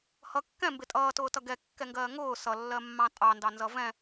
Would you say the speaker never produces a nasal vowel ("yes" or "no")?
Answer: no